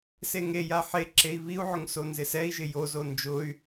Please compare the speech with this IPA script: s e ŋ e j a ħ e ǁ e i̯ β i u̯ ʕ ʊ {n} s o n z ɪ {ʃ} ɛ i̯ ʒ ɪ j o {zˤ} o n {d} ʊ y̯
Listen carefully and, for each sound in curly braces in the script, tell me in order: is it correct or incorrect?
incorrect: ŋ, incorrect: s, incorrect: z, incorrect: d͡ʒ

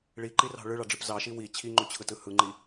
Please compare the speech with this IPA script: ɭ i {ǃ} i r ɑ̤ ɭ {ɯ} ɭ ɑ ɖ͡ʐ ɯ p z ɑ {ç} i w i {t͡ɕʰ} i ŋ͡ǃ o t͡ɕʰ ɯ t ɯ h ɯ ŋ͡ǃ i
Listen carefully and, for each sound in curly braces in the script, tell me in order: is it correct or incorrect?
correct, correct, incorrect: ʃ, correct

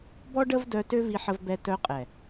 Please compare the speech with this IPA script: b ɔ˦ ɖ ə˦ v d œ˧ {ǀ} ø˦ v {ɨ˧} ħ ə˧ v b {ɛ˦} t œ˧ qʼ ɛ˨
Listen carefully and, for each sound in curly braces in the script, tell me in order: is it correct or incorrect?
incorrect: t, incorrect: i˧, incorrect: ɛ˧

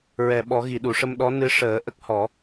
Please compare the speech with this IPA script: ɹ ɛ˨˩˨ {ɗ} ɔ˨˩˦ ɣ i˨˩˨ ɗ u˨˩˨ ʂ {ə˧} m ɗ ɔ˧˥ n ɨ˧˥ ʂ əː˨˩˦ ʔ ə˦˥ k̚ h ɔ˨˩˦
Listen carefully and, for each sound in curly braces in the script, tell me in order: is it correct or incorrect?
incorrect: ɓ, correct

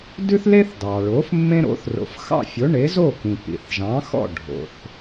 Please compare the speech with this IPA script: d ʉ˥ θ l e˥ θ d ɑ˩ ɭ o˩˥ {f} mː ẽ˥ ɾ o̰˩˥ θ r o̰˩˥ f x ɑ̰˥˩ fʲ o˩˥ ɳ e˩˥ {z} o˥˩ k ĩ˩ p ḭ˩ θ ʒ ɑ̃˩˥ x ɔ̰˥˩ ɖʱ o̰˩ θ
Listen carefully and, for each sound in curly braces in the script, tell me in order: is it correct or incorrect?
correct, correct

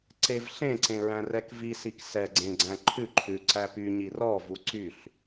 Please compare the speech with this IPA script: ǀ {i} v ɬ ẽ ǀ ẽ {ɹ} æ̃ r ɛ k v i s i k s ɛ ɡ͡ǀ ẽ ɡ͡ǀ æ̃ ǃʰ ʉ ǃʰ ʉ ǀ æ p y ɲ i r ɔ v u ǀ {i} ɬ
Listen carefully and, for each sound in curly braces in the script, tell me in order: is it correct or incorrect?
incorrect: e, correct, incorrect: y

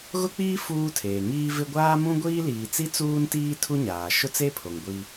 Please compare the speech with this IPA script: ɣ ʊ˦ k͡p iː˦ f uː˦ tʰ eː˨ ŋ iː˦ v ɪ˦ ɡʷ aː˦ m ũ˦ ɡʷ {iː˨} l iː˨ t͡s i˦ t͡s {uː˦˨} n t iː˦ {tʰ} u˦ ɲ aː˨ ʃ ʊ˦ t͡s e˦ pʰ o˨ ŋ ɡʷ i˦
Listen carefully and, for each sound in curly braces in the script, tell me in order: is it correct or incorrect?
incorrect: iː˦, incorrect: uː˦, correct

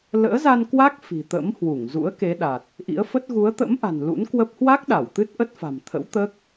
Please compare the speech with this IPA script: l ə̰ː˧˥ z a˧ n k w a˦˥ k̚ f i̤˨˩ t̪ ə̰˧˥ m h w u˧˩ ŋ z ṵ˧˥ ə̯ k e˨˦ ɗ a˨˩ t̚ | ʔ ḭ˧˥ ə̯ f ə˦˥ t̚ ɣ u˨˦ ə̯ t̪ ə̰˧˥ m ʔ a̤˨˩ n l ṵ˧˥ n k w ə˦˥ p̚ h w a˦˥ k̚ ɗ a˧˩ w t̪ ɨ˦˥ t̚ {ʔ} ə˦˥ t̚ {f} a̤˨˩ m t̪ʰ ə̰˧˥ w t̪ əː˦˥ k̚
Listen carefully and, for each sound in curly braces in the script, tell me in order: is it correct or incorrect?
correct, correct

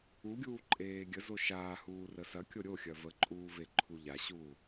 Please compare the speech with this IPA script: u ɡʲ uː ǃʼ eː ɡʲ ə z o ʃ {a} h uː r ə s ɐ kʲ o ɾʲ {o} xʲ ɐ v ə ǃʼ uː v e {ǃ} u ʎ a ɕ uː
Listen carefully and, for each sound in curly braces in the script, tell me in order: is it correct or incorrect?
incorrect: aː, correct, incorrect: ǃʰ

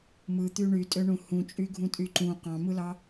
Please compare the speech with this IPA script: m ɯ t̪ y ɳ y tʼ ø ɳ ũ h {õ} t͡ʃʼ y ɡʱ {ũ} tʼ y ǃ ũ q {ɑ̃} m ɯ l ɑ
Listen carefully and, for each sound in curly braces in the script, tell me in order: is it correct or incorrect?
incorrect: ũ, correct, correct

